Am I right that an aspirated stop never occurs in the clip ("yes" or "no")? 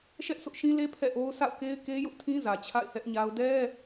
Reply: no